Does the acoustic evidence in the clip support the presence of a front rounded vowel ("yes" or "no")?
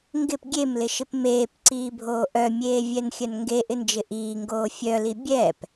yes